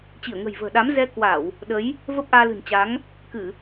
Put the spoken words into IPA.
t͡ɕ i˧˩ ə̯ ŋ ə̤˨˩ j v ə̤ː˨˩ ɗ a˨˦ m z ɛ˧ k w a˧˩˨ w | ɗ ə˨˦ j | v ə˦˥ p̚ ʔ aː˧ l ɨ̤˨˩ n t͡ɕ a˨˦ ŋ | k ɨ˧˩˨

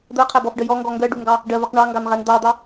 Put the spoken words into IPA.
d̪ ɜ qʰ æ b ɔ f ɖ ə j ɔ ŋ ɡ ɔ ŋ ɡ ɜ ɖ u ŋ ɡ ɑ | ɖ ɜ v ɜ q ɳ ɑ ŋ ɡ ɑ n ʁ æ n d̪ ɑ d̪ ɑ

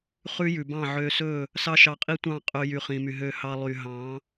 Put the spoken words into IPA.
χ ʉ˦ j ʉ˨ b ɑ̃˦˨ ʕ ø˧ s ɵ˦˨ | s ɑ˦ ʃ ɑ˧ qʼ i˦ tʷ ɑ̃˦˨ qʼ ɵ˧ j y˨ χ ĩ˨ m y˨ ɦ ø˧ h ɑ˧ lˠ y˨ ɦ ɑ̃˨˦

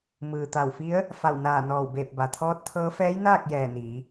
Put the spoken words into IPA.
m ɯː˩ t̪ a˧˩ w f i˧˥ ə̯ | f a˧˩ w n aː˧˩ n ɔː˧˩ w b eː˧˩ p̚ b a˩ t̪ʰ ɔː˧˥ t̚ t̪ʰ ɤː˧˥ f ɛː˧˥ j n aː˥˨ k̚ j ɛː˧˩ n iː˩˧

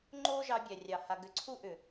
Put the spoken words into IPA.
ŋ͡ǃ o˦ ʒ ɑ˧ bʲ æ˨ rʲ ɑ˨ h a˨ ɡ ʏ˨ ǀʰ u˦ ʔ ʏ˨

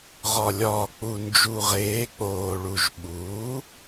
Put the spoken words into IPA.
ʁ ɒ˨˩ lʲ ɒː˨˩ k͡p u˨˩ n d͡ʒ u˨˩ ʁ eː˩˥ k͡p oː˨˩ ɭ u˨˩ ʒ ɓ uː˩˥

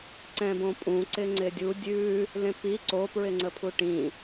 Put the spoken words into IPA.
ǀ ɛ̃ b õ pʼ ũ ǀ ɪ ŋ͡ǀ ɪ dʲ u dʲ ʉ | l ẽ p i ǀ o p ɹ ɪ ŋ͡ǀ ə pʰ u ʈ ĩ

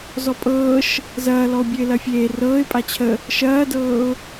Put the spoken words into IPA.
z ɔ pʼ ɤː ʃ | z ɐː l ɔ ʊ̯ bʲ ø ɪ̯ l ɐ fʲ eː r ɤː ɪ̯ pʼ a t͡ɕʰ ə | ʃ ɐː d ɤː ʊ̯

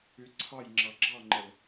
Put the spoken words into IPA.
y ǀʰ ɑ j ŋ͡ǁ ɑ ɡ͡ǁ ɑ ŋ͡ǃ ə l

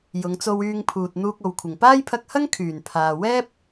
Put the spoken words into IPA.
j ʊ˨˧ ŋ t͡s o˧ w yː˧ ŋ pʰ uː˨ t̚ n̪ uː˧ k̚ o˨ w kʷʰ ɪ˨˩ ŋ p aː˥ j pʰ ɐ˧ k̚ h ɐ˥ ŋ kʰ yː˨˩ n pʰ aː˨ w ɛː˥ p̚

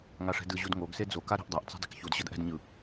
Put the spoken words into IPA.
ŋ a ʂ ɛ̤ d ɯ ʑ u d ŋ o ɡ s e d͡z o k a ɾ ɛ̤ ʔ dˤ a ʔ t͡s ɛ̤ dˤ e k ç u d ɕ ʌ d ʔ ɛ̤ d ɲ ɯ

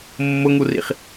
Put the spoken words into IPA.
mː ʊ ŋ u r ḭ χ

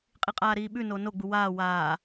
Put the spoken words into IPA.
qʼ i qʼ aː ɾ iː ɓ ʉ n o n o ɡ͡b u w aː w aː

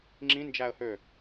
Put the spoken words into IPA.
ŋ͡ǁ ĩ n d͡ʒ æ ə̯ h ø

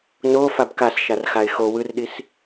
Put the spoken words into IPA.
n o f a b k a s ʃ a r x a ɪ̯ x o w ɯ r ɗ i s

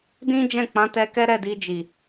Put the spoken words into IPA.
d ĩ˦ d͡ʒ ɛ̃˦˨ k͡p ã˨˦ t ɛ˧ k ɛ˦ ɾ ɛ˦˨ d i˧ d͡ʒ i˨

